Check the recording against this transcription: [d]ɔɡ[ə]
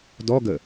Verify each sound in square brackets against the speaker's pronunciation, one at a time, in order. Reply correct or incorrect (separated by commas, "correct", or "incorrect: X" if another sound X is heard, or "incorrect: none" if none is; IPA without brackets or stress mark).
correct, correct